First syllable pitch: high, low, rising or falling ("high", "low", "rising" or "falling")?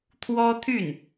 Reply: high